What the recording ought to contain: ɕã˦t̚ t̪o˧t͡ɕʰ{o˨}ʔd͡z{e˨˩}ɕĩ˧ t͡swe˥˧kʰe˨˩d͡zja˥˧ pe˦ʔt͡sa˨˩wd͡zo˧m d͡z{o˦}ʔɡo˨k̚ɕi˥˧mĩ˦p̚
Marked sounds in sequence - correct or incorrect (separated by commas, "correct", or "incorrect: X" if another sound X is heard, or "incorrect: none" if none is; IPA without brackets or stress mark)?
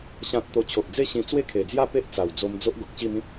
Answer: correct, incorrect: e˥˧, correct